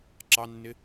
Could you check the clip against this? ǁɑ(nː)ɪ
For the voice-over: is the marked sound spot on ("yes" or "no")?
yes